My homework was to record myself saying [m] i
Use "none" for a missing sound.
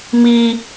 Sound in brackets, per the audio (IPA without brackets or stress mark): m